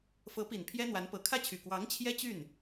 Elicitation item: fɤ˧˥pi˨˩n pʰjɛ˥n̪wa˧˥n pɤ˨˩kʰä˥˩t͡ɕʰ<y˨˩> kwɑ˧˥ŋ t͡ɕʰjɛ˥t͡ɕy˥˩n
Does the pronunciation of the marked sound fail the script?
no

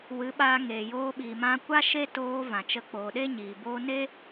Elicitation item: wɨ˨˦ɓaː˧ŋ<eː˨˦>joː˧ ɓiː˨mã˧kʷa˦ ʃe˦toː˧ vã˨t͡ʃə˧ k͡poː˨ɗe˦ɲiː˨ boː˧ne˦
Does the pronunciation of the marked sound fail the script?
yes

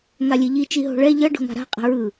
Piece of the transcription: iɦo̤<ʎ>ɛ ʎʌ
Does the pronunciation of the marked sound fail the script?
yes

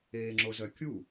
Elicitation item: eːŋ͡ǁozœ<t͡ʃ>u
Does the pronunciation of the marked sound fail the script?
yes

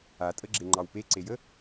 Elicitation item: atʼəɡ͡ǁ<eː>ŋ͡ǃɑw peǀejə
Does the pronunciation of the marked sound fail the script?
yes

